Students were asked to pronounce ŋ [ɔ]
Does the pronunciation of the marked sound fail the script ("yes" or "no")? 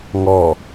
no